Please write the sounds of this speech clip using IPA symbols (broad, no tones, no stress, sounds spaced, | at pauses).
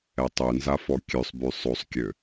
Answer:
ɛ tˤ ø n z a f ɔ kʲ ø sˤ b y sˤ o sˤ kʲ ø